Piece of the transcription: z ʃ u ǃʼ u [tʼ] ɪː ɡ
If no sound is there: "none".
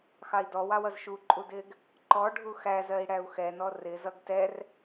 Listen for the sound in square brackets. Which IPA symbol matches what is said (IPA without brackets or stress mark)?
d